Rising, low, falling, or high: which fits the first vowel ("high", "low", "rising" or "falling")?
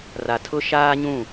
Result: low